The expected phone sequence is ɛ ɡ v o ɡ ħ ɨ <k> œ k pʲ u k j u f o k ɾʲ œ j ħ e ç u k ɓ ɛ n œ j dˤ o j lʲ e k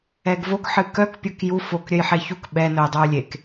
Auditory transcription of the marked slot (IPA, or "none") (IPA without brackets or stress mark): k